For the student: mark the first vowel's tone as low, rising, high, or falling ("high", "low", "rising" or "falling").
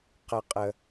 low